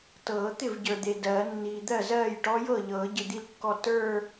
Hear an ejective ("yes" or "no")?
no